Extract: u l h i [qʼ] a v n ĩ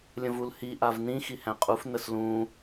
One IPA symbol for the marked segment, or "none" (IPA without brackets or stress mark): ʔ